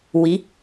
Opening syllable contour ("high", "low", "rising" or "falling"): rising